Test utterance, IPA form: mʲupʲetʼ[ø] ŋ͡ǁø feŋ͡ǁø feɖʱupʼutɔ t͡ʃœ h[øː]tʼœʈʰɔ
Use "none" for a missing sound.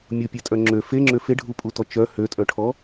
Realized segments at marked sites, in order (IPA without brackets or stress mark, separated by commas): œ, ø